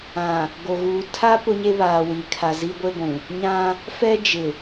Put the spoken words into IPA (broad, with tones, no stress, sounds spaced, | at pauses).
ã˨ | ɡ o˨ ɣ uː˨ tʰ a˦ p ʊ˦ ɲ e˦ β aː˨ w i˨ kʰ a˨ z i˦ ɡʷ e˦ ɡʷ ũ˨ | ɲ ã˦ | f ɛ˦ d͡ʒ ɪ˨